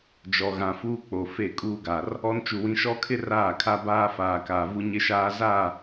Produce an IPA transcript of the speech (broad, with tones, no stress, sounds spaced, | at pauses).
d͡ʒ ɔ˨ ɣ ã˨ f uː˦ k͡p o˨ f e˦˨ kʼ uː˦ ɡ a˨ r | ɔ˦ n t͡ʃ u˨ w ĩ˨˦ ʃ ɔ˦ kʰ ɪ˦ r aː˦˨ kʰ a˦ b aː˦ f aː˨ k aː˨ v u˦ ɲ ɪ˦ ʃ aː˦ z a˦˨